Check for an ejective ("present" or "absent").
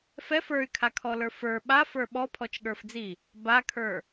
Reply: absent